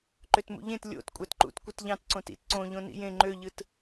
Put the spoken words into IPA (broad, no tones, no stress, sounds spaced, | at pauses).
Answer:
ǃ ø t m ṵ ʎ ẽ t lʲ o̰ t kʷʼ æ t ǃ ṵ t kʷ ɯ t ʎ ɑ̃ t ǀ õ t ḭ t ǀ õ ʎ õ n ḭ j ẽ ŋ͡ǃ ø ʎ ɯ t